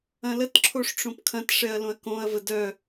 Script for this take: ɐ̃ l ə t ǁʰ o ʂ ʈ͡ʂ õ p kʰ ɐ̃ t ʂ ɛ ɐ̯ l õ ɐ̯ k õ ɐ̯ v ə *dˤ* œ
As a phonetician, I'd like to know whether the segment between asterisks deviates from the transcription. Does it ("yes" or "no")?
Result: yes